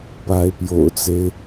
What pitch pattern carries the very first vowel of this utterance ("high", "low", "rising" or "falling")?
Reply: rising